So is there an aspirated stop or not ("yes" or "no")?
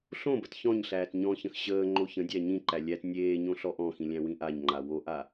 no